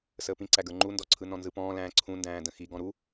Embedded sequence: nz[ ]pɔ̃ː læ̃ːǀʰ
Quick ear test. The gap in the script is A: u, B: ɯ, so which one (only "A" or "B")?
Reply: B